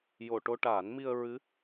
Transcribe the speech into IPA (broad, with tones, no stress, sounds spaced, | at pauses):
j o˨˩˨ ʈ o˧ ʈ aː˨˩˦ n m i˧ ə̯ ɹ ɨ˧˥